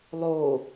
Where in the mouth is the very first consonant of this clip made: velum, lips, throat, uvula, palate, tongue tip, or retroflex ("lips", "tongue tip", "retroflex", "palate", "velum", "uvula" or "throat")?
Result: tongue tip